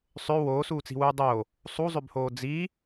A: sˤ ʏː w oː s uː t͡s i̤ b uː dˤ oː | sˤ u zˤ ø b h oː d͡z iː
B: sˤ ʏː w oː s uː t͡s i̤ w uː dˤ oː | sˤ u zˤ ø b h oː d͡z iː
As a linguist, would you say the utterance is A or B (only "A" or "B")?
B